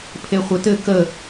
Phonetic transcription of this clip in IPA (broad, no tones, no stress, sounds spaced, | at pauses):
pʰ e χʷ ɘ t ɘ k ə